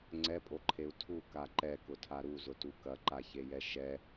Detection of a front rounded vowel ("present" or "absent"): absent